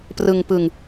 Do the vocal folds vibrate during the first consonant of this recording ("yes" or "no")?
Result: no